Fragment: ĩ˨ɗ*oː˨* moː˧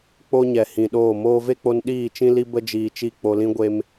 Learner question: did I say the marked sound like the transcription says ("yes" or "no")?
no